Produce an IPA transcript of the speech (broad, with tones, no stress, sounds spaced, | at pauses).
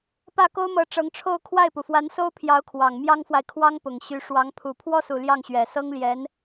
p ä˥˩ k o˥ ʊ̯ m ɤ˧˥ ʈ͡ʂ ɤ˧˥ ŋ ʈ͡ʂʰ o˥˧ ʊ̯ kʰ w a˥˩ ɪ̯ p u˩ f w a˧˥ n s o˥ ʊ̯ pʰ j ɑ˧˥ ʊ̯ kʰ w ɑ˨˩ ŋ m j ɑ˥ ŋ f w a˨ ɪ̯ kʰ w ɑ˥ ŋ p ʊ˨˩ ŋ ɕ y˧˥ ʂ w ɑ˧˥ ŋ pʰ u˨˩ pʰ w ɔ˥˩ s u˨˩ l j ɑ˥˩ ŋ ɕ ɥ ɛ˨˩ s ɤ˥ ŋ l j ɛ˧˥ n